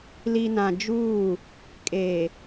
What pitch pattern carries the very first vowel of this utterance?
low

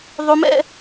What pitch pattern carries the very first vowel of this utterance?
high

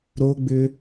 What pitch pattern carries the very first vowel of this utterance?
high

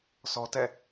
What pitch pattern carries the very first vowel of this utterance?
high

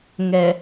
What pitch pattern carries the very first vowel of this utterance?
low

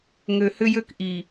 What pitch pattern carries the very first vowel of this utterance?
low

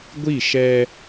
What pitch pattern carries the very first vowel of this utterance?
falling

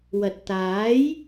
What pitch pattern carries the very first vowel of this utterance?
low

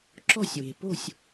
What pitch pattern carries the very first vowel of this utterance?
falling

